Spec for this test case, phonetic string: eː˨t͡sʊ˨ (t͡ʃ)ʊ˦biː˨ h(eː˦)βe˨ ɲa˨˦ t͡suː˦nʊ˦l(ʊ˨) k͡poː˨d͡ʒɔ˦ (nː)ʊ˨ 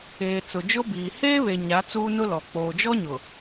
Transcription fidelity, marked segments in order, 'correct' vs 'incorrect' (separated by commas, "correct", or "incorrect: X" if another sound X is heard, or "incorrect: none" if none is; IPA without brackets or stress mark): incorrect: d͡ʒ, correct, incorrect: ɔ˨, incorrect: ɲ